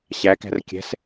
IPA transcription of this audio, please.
ɕ æ k æ̤ r kʲ ɛ̤ s

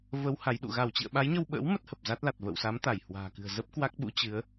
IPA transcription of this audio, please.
v ə˨˦ w h a˨˦ j ɗ ṵ˧˨ ɣ a˧˩ w t͡ɕ ḭ˧˨ ə̯ ɓ a˨˦ j ɲ ə˧ w ɓ ə̰ː˧˥ w m ə˦˥ t̚ h ə˨˩ p̚ z a˦˥ t̚ l a˨˩ t̚ v ə̰˧˨ w s a˨˦ m t̪ a˧˩ j h w a̤ː˨˩ k ɨ̤˨˩ ə̯ z ə˦˥ p̚ k w a˦˥ k̚ ɓ ṵ˧˥ t͡ɕ ɨ˨˦ ə̯

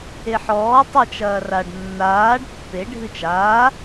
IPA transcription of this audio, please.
e ħ ɔː tˤ ə t͡ʃ ɐː r a ɖ nː aː ɖ pː e ɖʱ ɨ t͡ʃ aː

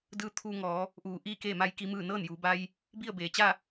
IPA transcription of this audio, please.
d ɯː˧˥ t̪ʰ uː˧ ŋ ɔː˩˧ | ʔ uː˧˩ ʔ iː˥˨ k eː˥˨ m a˧˥ j k i˧˥ m ɯː˥˨ n ɤː˥˨ n j uː˩˧ b a˧ j | b i˥˨ ə̯ b eː˩˧ t͡ɕ a˥˨

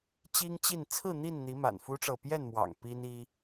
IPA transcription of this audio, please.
t͡ɕ i˦ ŋ t͡ɕ i˥˨ n t͡sʰ ɹ̩˥˨ n̪ i˥˨ n n̪ i˨˦ m a̰˨˩ n f u˦ ʈ͡ʂ ɤ˨ p j ɛ˥˨ n m w ɑ̰˨˩ ŋ p i˦ n i˦

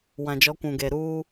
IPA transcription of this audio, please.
w ã˨ d͡ʒ ɔ˨˦ kʷ ũ˨ ɡ e˨ ɾ uː˦

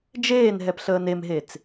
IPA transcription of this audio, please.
d͡ʒ eː n ɦ ɛ p ɬ əː n e m ɦ e t͡s

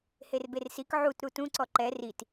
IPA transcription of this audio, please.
h e r b e r s i k ʕ u t ɾ u t ũ ǀ ɔ ǃ ɛ r i t

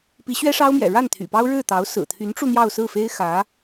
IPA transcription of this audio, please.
p i˧˥ ɕ ɥ ɛ˥ ʂ ɑ˥ ʊ̯ m j ɛ̰˨˩ ɻ a˥˩ n t̪ʰ y̰˨˩ p ɑ˥ ʊ̯ ɻ ɻ̩˥˩ t̪ ɑ˧˥ ʊ̯ s ɹ̩˨˩ t̪ʰ y˧˥ n ʈ͡ʂ u˧ n̪ j ɑ˥˧ ʊ̯ s ɹ̩˥˩ f e˥ ɪ̯ x ä˧˥

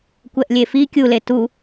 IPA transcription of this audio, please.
kʷ ɛ ʔ lʲ e f i kʲ u l e t u

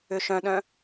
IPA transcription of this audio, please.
ʏ ʃ œ̃ ɗ œ̃

